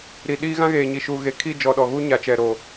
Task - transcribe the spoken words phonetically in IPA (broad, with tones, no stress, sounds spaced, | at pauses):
ɾ i˨ ɗ iː˦ ɣ ã˦ ɣ eː˨ ɲ i˨ ʃ uː˨ ɣ e˨ kʰ i˦˨ d͡ʒ ɔ˨ ɗ ɔ˨ ɣ u˦ ɲ a˨˦ t͡ʃ ɛ˨ ɾ o˨